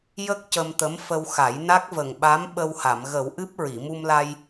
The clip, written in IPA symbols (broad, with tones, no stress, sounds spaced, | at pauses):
j ə˦˥ k̚ c ə˧ m t̪ ə˧˥ m f ə˧ w x a˨˩˦ j n a˦˥ k̚ v ə˨˩ ŋ ɓ a˧˥ m ɓ ə˧ w h a˨˩˨ m ɣ ə˨˩˦ w ʔ ɨ˦˥ p̚ ɹ i˨˩˨ m u˧ m l a˧ j